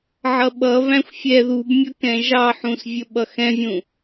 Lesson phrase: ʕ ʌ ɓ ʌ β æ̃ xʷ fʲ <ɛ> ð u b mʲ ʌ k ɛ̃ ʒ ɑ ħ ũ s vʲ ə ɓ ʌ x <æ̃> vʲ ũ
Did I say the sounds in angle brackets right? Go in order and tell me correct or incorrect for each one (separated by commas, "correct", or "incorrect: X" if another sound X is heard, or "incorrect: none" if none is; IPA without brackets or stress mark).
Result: correct, incorrect: ɛ̃